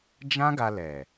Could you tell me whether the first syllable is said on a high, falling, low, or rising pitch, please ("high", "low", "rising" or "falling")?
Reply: high